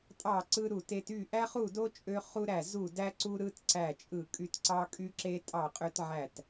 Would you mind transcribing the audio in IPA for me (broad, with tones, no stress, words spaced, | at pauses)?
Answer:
tʼɑ˦˨ǀɯ˦ ɾu˦˨te˦t y˦˨ʔæ˦χu˦˨do˦ t͡ʃʼø˦ χu˦ɾæ˦˨ zu˦˨ dæ˦ǀu˦ɾɯ˦t ǀæ˦˨t͡ʃʼɯ˦˨kʼy˦t ǀɑ˦kʼy˦ǁe˦ tʼɑ˦˨qʼø˦tʕæ˦˨t